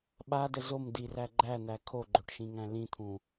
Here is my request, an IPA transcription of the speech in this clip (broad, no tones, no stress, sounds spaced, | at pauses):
ɓ a d ə z o m d i r æ ɡ͡ǃ æ n̪ æ kʰ o ɡ͡ǃ o ʈ ʃ ĩ ŋ æ̃ l ĩ t̪ʰ ũ